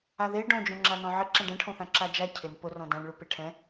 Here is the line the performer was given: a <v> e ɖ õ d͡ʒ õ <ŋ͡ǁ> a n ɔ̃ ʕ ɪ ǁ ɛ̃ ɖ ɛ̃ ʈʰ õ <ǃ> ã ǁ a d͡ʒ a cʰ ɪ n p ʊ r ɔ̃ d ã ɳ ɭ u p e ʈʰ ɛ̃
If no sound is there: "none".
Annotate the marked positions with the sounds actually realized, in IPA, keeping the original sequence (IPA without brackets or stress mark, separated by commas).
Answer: ð, ŋ͡ǁ, θ